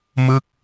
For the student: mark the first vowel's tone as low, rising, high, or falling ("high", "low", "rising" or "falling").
falling